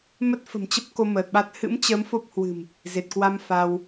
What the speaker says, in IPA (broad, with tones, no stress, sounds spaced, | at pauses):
m ə˦˥ t̚ f ə̤˨˩ m t͡ɕ ə˦˥ p̚ k o˧ m əː˨˩ t̚ ɓ a˦˥ t̚ h ɨ̰˧˥ m t͡ɕ ə˨˦ m f o˦˥ p̚ h w ɨ̤˨˩ m | z e˨˩ t̚ k w a˧ m f a˧ w